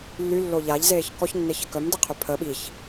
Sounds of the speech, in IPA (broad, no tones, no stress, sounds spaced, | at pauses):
lː y lː o ʎ a ʎ z eː ç k ɔ ç nː e ç ə k œ m d e qʰ y pʰ ə ɓ i ç